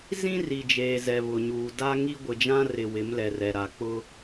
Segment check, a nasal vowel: present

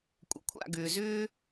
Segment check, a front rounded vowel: present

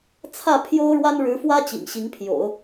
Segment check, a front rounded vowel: absent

